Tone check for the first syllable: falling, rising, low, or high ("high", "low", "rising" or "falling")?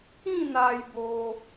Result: falling